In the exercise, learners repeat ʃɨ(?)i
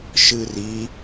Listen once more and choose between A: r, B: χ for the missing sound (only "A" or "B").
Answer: A